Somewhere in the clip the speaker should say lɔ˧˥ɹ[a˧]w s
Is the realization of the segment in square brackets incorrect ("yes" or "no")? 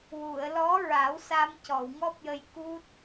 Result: yes